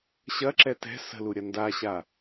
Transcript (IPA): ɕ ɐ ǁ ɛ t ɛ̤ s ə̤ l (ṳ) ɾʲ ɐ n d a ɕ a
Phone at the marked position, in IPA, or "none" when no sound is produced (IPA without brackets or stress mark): u